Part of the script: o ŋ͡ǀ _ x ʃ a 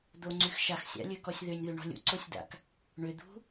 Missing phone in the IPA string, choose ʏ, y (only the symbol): y